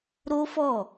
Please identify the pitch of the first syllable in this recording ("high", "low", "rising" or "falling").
high